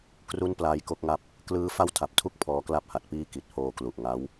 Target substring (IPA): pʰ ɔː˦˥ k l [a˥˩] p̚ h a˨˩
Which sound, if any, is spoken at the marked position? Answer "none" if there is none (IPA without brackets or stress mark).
a˥˩